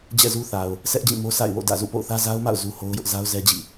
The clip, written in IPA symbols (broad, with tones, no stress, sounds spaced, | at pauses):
d͡ʑ ɛ̰˦˨ z u˦ θ a˨ ʊ̯ | s ɛ˦ ʔ d͡ʑ ĩ˦˨ m o˦ sʰ a̰˦˨ ɪ̯ w o̰˦˨ d ä̰˦˨ z ṵ˦˨ p o̰˦˨ ʊ̯ θ ä˦ z a˦ ʊ̯ m a̰˦˨ ʊ̯ z u˦ h o˦ ʊ̯ j ʊ˦ ʔ z a˦ ʊ̯ z ɛ˦ d͡ʑ ḭ˦˨